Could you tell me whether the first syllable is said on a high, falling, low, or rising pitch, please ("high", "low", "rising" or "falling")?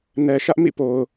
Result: low